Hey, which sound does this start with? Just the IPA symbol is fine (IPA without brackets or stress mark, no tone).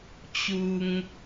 t͡ɕ